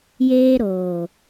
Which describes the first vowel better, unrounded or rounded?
unrounded